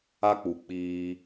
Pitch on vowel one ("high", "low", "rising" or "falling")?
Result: high